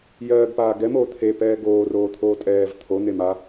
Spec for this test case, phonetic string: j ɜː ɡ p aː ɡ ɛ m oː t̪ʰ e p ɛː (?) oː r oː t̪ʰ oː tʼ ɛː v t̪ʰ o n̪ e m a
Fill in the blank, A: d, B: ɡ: B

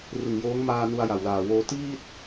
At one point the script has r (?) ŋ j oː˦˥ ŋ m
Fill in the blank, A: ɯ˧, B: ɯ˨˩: B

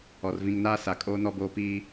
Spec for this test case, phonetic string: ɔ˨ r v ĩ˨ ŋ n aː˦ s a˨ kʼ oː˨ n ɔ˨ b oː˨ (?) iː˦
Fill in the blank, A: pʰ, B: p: B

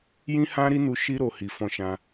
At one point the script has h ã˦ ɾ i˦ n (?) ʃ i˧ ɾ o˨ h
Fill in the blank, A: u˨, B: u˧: B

